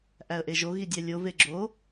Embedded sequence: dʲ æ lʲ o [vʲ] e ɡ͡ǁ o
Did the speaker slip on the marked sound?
yes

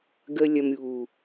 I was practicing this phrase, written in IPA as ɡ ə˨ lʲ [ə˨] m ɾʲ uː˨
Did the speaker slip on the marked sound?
yes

